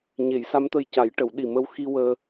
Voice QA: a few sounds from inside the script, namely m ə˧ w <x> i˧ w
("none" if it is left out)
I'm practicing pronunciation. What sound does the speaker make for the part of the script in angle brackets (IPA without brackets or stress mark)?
x